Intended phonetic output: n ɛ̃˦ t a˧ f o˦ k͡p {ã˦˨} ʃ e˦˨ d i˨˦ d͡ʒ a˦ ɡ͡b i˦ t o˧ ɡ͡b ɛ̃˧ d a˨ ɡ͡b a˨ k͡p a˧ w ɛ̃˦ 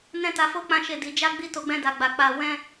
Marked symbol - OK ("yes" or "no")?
no